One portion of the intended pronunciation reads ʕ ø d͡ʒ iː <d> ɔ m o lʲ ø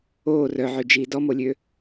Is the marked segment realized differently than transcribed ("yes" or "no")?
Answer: no